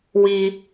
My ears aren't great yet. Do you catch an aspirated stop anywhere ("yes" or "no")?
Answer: no